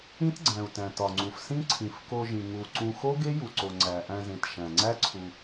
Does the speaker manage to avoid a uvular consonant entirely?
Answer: yes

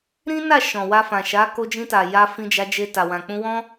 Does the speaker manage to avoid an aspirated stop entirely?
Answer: yes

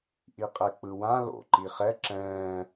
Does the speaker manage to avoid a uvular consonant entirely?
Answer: no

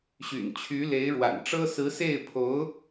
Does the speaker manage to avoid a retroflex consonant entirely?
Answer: no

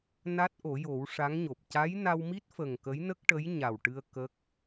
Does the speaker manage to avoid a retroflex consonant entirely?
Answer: no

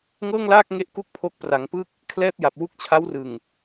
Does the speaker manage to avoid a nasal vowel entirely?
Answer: yes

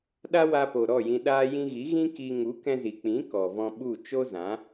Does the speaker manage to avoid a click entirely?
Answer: yes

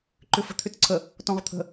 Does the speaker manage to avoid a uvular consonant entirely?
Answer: no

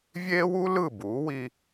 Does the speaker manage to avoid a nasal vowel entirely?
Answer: yes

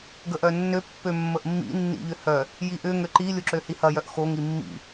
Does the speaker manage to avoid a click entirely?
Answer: no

